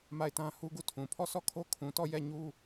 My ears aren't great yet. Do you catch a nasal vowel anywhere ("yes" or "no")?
yes